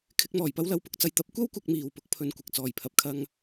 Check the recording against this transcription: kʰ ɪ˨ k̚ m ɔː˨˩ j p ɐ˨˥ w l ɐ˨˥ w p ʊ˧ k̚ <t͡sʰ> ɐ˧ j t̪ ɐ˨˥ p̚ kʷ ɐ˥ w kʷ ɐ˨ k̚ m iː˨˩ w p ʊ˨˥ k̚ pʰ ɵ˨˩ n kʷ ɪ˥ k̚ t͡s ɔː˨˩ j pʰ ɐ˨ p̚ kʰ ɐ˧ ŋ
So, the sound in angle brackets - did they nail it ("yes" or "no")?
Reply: no